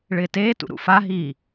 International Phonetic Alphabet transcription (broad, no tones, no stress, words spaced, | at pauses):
ɭɪːteːtṵ ɾṵfaɦiː